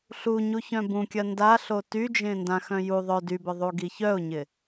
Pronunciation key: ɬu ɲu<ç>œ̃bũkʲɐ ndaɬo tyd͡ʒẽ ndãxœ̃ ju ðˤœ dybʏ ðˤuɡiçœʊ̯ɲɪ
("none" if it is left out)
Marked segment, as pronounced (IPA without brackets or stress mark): ç